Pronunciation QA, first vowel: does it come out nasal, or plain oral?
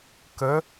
oral